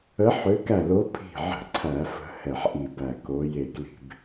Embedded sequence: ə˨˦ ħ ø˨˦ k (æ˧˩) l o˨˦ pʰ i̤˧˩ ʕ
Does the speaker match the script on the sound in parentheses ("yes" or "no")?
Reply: yes